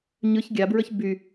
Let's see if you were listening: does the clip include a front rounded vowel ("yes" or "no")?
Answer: yes